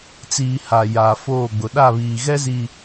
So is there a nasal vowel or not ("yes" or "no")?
no